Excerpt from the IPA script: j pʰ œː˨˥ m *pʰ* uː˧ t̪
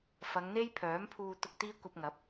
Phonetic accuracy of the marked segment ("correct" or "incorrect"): correct